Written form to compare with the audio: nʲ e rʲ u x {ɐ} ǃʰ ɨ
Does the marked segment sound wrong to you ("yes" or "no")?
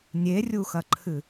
no